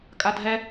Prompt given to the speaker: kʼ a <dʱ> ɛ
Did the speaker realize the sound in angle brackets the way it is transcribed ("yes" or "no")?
yes